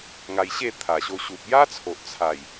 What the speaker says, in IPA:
ŋ a˧ j ɕ e˥˧ t̪ʰ a˨˩ ɕ o˧ ɕ u˨ p̚ j a˦ t͡sʰ o˨ ʔ t͡sʰ a˨˩ j

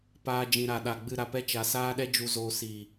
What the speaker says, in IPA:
p aː˧ d͡ʒ ĩ˨ ɾ a˨ ɗ a˨ ɡ͡b ɨ˦˨ ɾ a˧ p ɛ˧ t͡ʃ a˨ s aː˦ ɗ ɛ˦ d͡ʒ u˧ z oː˧ s iː˨

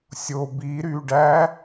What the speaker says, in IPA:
sʲ o b i ɾ y ɖ æ

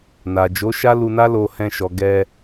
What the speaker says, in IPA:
n a˨ d͡ʒ o˨˦ ʃ a˦ l u˧ n a˦ l o˧ h ɛ̃˧ ʃ ɔ˨ ɡ ɛ˧

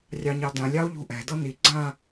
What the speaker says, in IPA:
rʲ ɑ ɲ ɑ d ã lʲ ɑ o̯ ʎ ṳ ʔ ɛ̤ d ɤ n i ɡ͡ǀ ã

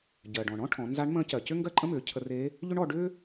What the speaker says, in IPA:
ɟ ɜ˩ ɖ ɔ̃˩ ɳ ɔ̃˥ ʈʰ ɔ̃˩˧ n z a˧˥ ɳ m ə̃ː˧˥ c ɜ˩ c ʏ˥ ŋ ɡ ɜ˥ ǃʼ ə̃˥ m ʏː˩˧ cʰ ə˧ r e˧˥ | ʎ ʏ˥ ɳ ɔ˧ ɖ ʏː˥

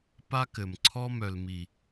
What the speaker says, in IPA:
p a˦ k ɘ˨ m ǀʰ ɔ˦ m œ˨ l m i˨

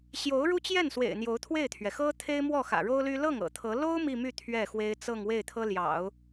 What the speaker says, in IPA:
ɕ j o˧˥ ʊ̯ ɻ u˥ t͡ɕ j ɛ˥˩ n s w ḛ˨˩ ɪ̯ n̪ j o˧˥ ʊ̯ t̪ʰ w e˥˩ ɪ̯ t̪ʰ ɥ ɛ˩ x ɤ˥ t̪ʰ e˥ ɪ̯ m w ɔ˥˩ x ä̰˨˩ ɻ o˥ ʊ̯ l y˥ l ɤ˥˩ ŋ ɤ̰˨˩ t̪ʰ ɤ˧˥ l o˥ ʊ̯ m i˥˧ m y˥˧ t̪ʰ ɥ ɛ˥˩ x w e˥ ɪ̯ t͡s ɤ˥˧ ŋ w e˥˩ ɪ̯ t̪ʰ ɤ˥ l j ɑ̰˨˩˦ ʊ̯

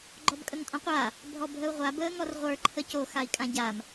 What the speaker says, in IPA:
ɡ͡ǃ ɔ b kʼ ə ŋ tʼ ɔ̃ qʷ a | bʱ ɔ bʱ ə u̯ ʁʷ a b əː ŋ ɔ r ʁʷ ə˞ ǃʰ ə c o x a i̯ kʼ ã ɟ a m

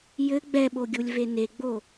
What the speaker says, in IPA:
j ɘ ɡ͡b ɛ ɓ o ɡʲ u lʲ v e n e ɡ͡b o

